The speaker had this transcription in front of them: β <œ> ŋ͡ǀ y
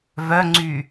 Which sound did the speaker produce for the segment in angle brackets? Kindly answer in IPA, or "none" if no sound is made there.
œ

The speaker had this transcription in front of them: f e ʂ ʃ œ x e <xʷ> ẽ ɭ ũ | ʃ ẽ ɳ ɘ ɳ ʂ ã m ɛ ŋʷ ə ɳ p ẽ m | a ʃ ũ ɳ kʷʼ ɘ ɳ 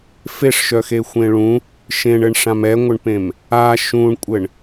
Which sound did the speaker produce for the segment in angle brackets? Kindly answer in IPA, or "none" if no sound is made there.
xʷ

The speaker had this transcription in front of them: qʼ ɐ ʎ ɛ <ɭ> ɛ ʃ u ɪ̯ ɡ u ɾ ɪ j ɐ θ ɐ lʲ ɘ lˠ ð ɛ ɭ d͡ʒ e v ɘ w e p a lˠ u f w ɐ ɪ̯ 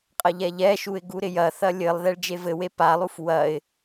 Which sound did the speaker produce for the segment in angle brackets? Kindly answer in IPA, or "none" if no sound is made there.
ʎ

